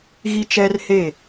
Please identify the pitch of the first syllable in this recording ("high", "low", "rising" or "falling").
high